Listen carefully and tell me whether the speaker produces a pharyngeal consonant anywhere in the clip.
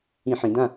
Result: yes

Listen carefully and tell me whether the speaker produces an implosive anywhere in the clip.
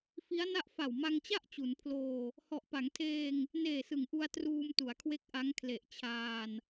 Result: no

